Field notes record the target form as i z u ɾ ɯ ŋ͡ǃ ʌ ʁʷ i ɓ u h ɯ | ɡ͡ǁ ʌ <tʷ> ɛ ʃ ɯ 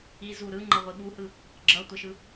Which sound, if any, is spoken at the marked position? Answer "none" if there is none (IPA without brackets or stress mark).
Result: tʷ